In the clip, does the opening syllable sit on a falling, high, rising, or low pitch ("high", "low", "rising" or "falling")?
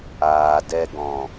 low